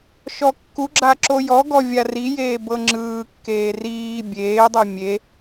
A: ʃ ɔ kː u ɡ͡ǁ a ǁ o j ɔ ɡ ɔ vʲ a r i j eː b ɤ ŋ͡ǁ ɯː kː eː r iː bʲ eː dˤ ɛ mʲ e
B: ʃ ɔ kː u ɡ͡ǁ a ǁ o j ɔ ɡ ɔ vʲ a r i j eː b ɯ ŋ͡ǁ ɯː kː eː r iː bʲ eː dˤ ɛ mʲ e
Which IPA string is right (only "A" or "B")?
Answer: A